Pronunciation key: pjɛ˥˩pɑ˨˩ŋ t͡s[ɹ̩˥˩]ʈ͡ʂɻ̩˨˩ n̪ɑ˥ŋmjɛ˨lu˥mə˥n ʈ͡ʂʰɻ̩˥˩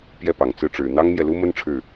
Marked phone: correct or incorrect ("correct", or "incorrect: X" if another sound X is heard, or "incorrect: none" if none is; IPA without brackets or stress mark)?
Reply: correct